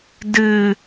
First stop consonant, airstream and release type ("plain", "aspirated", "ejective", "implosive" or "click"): plain